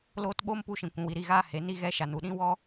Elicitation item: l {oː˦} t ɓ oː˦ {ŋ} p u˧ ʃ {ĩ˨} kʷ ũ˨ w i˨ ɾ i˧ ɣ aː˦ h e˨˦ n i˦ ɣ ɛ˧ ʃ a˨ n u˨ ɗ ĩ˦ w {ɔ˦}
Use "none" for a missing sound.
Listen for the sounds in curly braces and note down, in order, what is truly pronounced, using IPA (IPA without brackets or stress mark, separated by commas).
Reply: oː˦, m, ĩ˨, ɔ˦